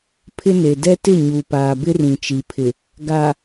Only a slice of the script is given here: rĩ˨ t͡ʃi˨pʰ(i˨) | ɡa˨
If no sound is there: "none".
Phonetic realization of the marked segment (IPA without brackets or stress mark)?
ɪ˨